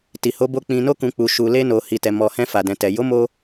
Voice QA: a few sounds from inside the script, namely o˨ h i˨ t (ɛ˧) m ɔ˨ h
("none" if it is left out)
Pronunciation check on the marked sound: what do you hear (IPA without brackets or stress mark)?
ɛ˨